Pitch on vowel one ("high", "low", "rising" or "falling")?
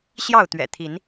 falling